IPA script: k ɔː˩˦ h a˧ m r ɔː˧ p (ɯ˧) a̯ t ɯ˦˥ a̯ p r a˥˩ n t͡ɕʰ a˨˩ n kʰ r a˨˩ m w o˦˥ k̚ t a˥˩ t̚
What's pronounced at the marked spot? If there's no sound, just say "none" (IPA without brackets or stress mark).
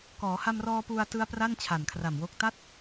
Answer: u˧